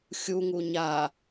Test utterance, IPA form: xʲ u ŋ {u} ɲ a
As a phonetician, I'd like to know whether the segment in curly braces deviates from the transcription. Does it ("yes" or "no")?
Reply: no